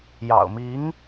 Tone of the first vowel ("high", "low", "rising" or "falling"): low